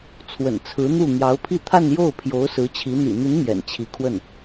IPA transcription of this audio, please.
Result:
t͡sʰwə̰˨˩nt͡sʰɹ̩˧˥ n̪u˥˩ n̪jɑ˧˥ʊ̯pʰi˥˧ t̪ʰa˥˧njo˥˩ʊ̯ pʰjo˧˥ʊ̯ sɹ̩˧˥t͡ɕʰi˧˥ n̪ḭ˨˩n̪i˧˥n mjɛ̰˨˩nt͡ɕʰi˧˥ kʰwə˥˩n

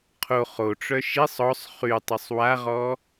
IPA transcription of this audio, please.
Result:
qʰo χoʈ͡ʂœ ʃisˤ ɔsˤ χytˤisˤ waʁɔ

